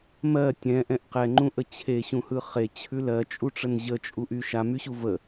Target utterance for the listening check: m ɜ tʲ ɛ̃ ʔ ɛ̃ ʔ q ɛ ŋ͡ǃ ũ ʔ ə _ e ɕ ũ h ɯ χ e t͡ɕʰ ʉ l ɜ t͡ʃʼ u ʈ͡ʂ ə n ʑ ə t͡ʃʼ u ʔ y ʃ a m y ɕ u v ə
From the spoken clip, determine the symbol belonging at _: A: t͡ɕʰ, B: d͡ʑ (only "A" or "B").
A